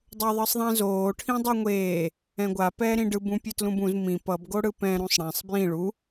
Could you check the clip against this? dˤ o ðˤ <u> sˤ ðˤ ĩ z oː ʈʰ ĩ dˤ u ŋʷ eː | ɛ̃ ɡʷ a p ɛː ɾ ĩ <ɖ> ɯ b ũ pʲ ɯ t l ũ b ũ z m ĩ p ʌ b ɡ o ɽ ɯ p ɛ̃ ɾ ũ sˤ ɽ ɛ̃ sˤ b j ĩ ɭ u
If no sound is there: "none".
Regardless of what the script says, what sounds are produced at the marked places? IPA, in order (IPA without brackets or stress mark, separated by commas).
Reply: ɯ, ɖ